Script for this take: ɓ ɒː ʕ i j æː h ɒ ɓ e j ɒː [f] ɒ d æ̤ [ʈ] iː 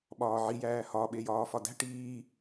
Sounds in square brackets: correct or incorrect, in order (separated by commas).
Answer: correct, correct